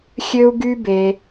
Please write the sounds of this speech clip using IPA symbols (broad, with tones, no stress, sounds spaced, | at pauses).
xʲ ø˦ u̯ ɡ y˦ b e˧